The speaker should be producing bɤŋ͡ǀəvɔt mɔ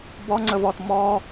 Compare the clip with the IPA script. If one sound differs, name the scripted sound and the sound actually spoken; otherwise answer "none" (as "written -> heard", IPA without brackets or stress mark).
ɤ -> ɔ